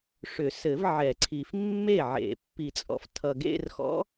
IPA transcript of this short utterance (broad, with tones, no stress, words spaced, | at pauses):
ʂʏ˨˩˦sɘ˨˩˦v ʕɛ˨˩˦ǀʰi˨f mːe˥˩ʕḛ˨˩˦ pːi˨˩˦t͡sʼɔ̰˨ftʰʌ˨ ɡḛ˥˧rxɔ̰˧˥